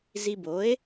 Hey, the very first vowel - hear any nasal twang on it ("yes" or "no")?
no